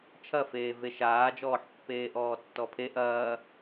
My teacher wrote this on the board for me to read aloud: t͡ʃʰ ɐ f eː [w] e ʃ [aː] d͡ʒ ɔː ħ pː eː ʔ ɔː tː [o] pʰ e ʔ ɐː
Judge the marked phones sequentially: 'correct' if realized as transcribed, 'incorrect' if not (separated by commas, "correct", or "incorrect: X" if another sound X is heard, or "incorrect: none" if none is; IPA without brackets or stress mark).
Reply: incorrect: v, correct, incorrect: ɔ